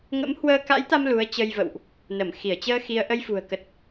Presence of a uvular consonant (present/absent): absent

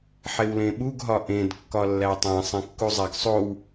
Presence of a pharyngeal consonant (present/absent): present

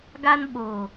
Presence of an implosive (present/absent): present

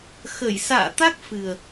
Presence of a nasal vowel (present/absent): absent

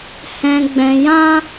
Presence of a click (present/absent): absent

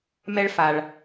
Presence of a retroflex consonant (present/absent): present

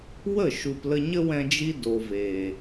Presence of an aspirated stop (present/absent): absent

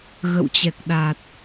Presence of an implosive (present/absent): present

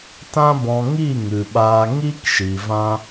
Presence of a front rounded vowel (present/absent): absent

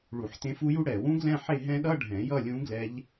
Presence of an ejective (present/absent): absent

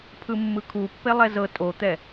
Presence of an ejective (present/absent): present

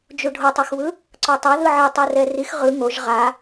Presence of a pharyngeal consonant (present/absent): present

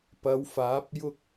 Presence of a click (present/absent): absent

